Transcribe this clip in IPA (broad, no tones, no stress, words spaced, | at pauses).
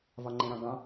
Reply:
vɒŋ͡ǃẽɾɑ̃ɡɑ̃